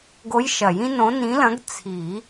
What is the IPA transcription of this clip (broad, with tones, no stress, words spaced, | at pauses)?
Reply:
ɡo˧˥jʃɐ˨˩˦jĩ˥nõ˧˥ nĩ˧˥lɐ̃˧˥ɡ t͡sʰi˨˩˦